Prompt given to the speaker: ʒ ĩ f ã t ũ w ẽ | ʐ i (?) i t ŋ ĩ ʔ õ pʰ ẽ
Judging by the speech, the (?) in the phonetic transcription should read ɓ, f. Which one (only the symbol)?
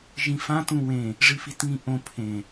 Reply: f